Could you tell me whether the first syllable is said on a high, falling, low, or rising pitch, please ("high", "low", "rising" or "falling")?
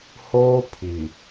high